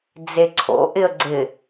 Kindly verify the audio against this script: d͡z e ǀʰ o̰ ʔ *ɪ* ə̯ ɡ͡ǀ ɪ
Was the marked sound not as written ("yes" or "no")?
no